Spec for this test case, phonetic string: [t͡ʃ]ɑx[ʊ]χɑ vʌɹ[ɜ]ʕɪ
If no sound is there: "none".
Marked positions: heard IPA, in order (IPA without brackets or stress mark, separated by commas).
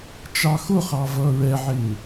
t͡ʃ, ʊ, ɛ